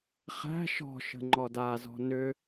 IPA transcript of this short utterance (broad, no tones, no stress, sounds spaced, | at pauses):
χ æ̤ ʃ ɔ̤ ʃ ə̤ ŋ͡ǃ ɔ d a z ɔ̤ n ʏ